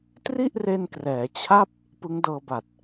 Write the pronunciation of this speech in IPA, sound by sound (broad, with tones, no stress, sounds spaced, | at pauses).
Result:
t r i˥˩ ʔ r e˧ n k r ɛː˩˦ t͡ɕʰ a˥˩ p̚ | p ɯ˦˥ ŋ d ɤː˧ b a˨˩ t̚